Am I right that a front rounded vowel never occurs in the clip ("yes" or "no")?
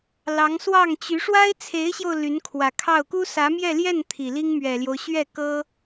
no